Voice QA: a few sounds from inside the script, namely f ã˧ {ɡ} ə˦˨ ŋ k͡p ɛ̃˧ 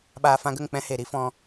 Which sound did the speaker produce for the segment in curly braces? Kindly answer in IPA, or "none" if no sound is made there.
ɡ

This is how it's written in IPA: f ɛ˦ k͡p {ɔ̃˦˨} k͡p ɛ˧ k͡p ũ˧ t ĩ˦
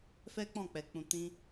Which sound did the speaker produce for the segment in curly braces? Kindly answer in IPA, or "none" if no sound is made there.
ɔ̃˦˨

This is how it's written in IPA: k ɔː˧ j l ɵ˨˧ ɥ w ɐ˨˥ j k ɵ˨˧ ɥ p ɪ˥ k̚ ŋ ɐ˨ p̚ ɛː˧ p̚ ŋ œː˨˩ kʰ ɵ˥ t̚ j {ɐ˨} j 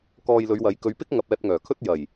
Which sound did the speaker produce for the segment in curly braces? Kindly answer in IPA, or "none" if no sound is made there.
ɐ˨˩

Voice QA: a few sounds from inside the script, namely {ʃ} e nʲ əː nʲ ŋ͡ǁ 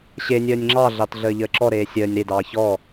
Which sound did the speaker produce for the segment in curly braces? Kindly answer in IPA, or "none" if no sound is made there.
ɕ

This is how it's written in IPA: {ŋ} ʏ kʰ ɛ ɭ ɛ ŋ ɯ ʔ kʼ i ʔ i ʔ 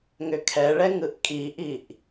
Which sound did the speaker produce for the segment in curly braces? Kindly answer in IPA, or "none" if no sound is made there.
ŋ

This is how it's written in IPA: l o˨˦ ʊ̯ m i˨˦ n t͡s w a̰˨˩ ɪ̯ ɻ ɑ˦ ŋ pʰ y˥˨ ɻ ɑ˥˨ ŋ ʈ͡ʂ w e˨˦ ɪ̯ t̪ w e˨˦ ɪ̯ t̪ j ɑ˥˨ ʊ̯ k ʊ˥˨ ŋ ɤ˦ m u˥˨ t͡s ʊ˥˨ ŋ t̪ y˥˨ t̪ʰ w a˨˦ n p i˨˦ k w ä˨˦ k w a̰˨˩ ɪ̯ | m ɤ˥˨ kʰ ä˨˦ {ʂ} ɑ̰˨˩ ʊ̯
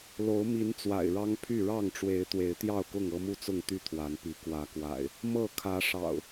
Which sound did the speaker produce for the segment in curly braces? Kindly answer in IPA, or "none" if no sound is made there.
ʂ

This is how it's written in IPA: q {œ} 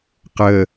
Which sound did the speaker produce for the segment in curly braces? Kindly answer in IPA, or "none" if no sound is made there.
ə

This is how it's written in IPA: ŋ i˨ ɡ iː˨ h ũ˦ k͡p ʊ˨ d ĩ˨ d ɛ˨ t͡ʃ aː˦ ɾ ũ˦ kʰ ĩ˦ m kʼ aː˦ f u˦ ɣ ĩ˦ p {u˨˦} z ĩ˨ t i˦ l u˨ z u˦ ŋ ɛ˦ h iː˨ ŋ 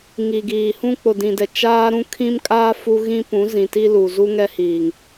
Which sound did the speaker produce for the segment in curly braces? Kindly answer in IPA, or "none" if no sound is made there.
ũ˨˦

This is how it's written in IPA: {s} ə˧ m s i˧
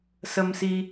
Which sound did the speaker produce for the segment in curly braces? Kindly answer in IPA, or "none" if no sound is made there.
s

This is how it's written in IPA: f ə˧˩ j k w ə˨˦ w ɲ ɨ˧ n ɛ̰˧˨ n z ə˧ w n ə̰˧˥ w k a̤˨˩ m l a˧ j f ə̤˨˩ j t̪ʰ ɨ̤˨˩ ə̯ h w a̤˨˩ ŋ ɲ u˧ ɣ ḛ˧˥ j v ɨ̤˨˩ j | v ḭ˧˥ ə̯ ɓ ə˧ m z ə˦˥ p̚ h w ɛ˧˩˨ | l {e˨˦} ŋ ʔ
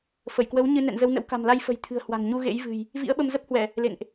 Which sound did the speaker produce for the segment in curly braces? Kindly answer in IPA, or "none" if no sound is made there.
ḛ˧˨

